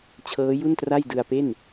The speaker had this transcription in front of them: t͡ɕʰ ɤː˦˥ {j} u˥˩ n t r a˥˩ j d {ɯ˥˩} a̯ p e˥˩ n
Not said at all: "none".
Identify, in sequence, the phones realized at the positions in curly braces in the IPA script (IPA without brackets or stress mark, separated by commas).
j, ɯ˧